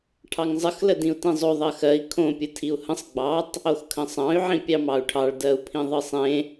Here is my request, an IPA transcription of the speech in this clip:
ʈʰ ɑ ŋ zˤ ə x l ə d ĩ u̯ t ĩ zˤ o ðˤ ɜ x ɜ i̯ kʰ õ pʲ ɯ tʰ i u̯ h ə̃ sˤ ɡ͡b ɑ tˤ | o x kʰ ə̃ sˤ ɑ̃ y̯ ʕ ĩ pʲ ɑ m ɑ u̯ ʈʰ ɑ ɭ d ɜ u̯ pʰ ĩ ðˤ ɯ sˤ ẽ

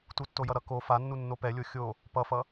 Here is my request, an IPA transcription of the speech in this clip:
t u tː o j ʌ ɾ ʌ k o f a nː u nː o p ɛ lʲ o xʲ o | p ʌ f ʌ

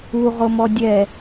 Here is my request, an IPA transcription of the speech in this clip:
u ʁ o m ɔ dʲ ɛ

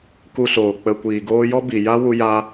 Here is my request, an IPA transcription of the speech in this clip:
k u˧ s oː˨ k͡p ə˨ kʷ iː˨ ɡ oː˧ j ɔ˦ b i˨ j a˦ w u˧ j a˧

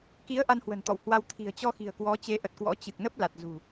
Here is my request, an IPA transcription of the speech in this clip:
k i˨˦ ə̯ ʔ a˧ n h w ə̤˨˩ n t̪ ɔ̰˧˨ w h w a˧ w t̪ʰ i̤˨˩ ə̯ t͡ɕ ɔ˧ x i̤˨˩ ə̯ k w ɔ˨˦ t͡ɕ e˨˦ ʔ ə˨˩ t̚ k w ɔ̰˧˥ t͡ɕ ɨ˨˩ k̚ n ə˦˥ p̚ l a˨˩ t̚ z ṳ˨˩

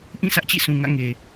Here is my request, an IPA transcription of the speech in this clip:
ʔ ĩ˦˨ sʰ ä˦ ʔ t͡ɕ ḭ˦˨ sʰ ũ˨ ŋ ä̰˦˨ ŋ e˨

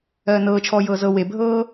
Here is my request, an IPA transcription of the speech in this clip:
ɜː n ɤː t͡ʃʰ ɔː j ɤː z ɤ w e bʱ ɤː

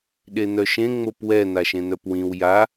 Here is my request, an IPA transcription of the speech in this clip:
ɗ e n̪ œ ʃ ẽ ŋ͡m o p w ɛ n̪ a ʃ ẽ n̪ œ p w ĩ w j a

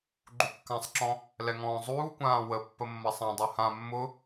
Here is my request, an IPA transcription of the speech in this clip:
ɡ͡ǃ u kː ã sˤ ǁ ɔ̃ | l ɛ ŋ ɔ̃ː zˤ uː kʷ ãː w ə pː ə mː ɐ sˤ ã dˤ u h ã mː ʊ

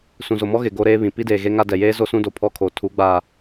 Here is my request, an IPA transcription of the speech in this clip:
s ũ˨ z o˨ m ɔ˦ ɣ ɪ˨ ɡ o˦ ɾ eː˦ β ĩ˨ p i˦ d eː˨ ɣ e˦ ŋ a˦ d ɛ˨ j eː˦ z o˦ s ũ˦ d o˨ pʰ ɔ˦ kʰ oː˨ tʰ u˨˦ ɡ͡b aː˨

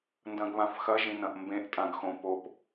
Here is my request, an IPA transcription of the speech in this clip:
n d ɐ̃ ɡ β ã f x ɐ ʒ ĩ n ɐ̃ ʔ m b ẽ ʔ tʼ ã ɡ x õ p o p

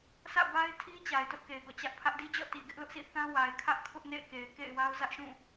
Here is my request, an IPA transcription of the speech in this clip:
s ä̰˦˨ b a˦ ɪ̯ tʰ i˦ t͡ɕ a˨ ɪ̯ t ʊ˦ ʔ k e˨ ɪ̯ ɡ ɔ̰˦˨ t͡ɕ ä˦ ʔ pʰ ä˦ ʔ d i˦ d͡ʑ ɔ̰˦˨ t i˨ ɡ ɪ˦ ʔ l ʊ˦ ʔ s ḭ˦˨ θ ã˦ w a˨ ɪ̯ kʰ ä˦ ʔ kʰ ʊ˦ ʔ n ḛ˦˨ ɪ̯ k e˨ ɪ̯ k ḛ˦˨ ɪ̯ w a˦ ʊ̯ z ä˦ ʔ ʃ ũ˦˨

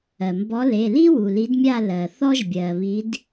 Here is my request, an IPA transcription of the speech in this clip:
ɜ˩ m b ɔ˨˦ l e˩˧˩ l i˥ w u˩ l i˨˦ d mʲ a˥˧ l ɜ˩ θ ɔ˥ ʒ bʲ ɜ˩ β i˨˦ d

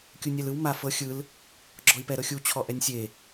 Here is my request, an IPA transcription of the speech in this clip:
kʲ u nʲ ɛ l ɯ w m a f ɤ xʲ ɯ l | ɡ͡ǁ ɔ i̯ p ɛ ɾ ɤ xʲ u t͡ɕʰ ɔ ʔ ɛ nʲ sʲ e

